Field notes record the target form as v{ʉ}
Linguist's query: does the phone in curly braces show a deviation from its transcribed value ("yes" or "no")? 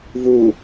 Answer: yes